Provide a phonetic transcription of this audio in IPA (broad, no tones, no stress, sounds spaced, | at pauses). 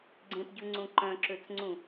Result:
ɡ͡ǀ ẽ p ɟ ʉ ŋ͡ǀ ũ ǃ œ̃ ǁ ø t͡s ŋ͡ǀ ũ